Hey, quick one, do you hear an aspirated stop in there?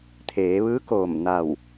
yes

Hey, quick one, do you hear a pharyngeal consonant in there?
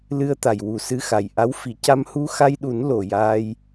no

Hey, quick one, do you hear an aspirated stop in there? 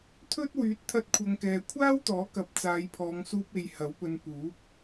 yes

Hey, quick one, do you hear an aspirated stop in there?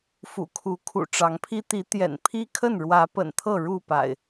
yes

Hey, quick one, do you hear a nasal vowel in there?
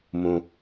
yes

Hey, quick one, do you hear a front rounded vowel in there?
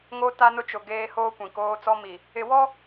no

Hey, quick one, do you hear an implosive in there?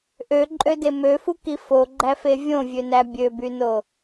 no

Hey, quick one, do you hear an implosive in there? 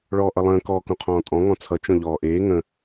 no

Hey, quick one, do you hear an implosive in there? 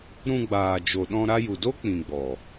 yes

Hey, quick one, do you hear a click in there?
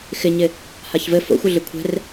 no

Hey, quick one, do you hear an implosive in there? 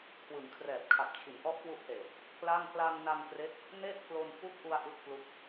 no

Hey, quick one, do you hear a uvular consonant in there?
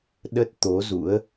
no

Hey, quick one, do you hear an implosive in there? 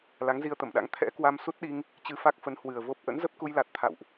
yes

